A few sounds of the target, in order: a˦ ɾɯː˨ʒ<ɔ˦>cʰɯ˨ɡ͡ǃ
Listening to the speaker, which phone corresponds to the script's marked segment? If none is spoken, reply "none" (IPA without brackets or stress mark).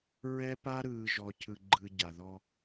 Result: ɔ˨